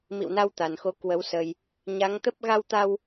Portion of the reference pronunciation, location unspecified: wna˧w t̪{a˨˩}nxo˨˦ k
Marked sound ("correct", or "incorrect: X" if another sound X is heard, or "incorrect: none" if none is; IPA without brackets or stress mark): correct